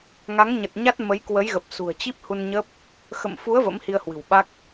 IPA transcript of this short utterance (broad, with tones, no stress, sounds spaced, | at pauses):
ŋ a˨˦ ŋ ɲ ə˨˩ t̚ ɲ a˦˥ t̚ m ə˨˦ j k w ə˨˦ j ɣ ə˨˩ p̚ s ṳ˨˩ ə̯ t͡ɕ i˦˥ p̚ h u˧ n ɲ ə˦˥ p̚ | x ə̰˧˨ m f u˨˦ ə̯ v ə̰˧˥ m h i˧ ə̯ h w ɨ̤˨˩ w ɓ a˦˥ k̚